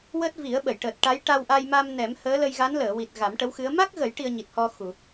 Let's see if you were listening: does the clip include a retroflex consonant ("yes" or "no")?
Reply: yes